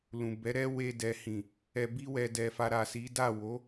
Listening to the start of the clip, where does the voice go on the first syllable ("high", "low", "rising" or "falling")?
low